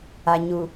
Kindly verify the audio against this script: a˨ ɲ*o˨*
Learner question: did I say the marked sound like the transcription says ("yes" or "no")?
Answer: no